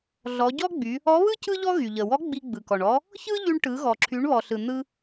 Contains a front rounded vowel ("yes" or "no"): yes